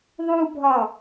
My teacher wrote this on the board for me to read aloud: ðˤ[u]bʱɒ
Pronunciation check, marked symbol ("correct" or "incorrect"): correct